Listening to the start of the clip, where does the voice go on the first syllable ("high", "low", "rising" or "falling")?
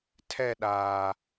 falling